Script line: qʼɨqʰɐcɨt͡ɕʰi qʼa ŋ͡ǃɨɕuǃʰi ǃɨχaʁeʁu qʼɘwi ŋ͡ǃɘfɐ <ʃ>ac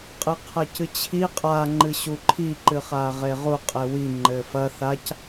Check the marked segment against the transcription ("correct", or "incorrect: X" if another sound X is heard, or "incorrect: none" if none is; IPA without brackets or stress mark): incorrect: θ